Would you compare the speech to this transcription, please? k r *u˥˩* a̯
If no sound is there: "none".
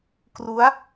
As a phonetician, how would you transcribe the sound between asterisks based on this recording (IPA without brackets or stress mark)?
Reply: u˦˥